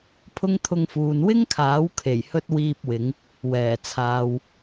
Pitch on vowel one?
high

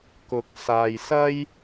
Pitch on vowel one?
low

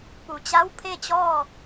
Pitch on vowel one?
low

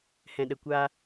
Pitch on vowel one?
low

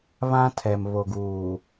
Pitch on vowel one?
high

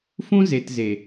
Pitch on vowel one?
high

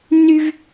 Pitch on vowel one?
high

